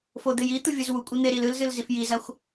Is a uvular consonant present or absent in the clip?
absent